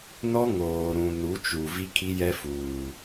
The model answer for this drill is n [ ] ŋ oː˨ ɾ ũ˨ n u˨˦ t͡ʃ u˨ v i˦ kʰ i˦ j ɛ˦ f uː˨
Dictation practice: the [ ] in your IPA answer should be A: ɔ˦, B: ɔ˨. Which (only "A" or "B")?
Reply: A